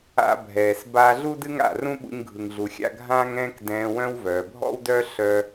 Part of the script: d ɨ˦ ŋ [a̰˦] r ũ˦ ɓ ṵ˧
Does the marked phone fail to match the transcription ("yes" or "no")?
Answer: yes